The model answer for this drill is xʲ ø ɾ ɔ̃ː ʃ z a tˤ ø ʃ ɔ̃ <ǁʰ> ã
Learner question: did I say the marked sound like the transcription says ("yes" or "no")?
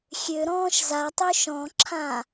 yes